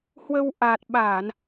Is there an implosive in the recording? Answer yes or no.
yes